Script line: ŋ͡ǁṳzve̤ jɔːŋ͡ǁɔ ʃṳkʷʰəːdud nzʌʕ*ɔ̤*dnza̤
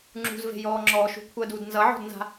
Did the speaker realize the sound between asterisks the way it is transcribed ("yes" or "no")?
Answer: yes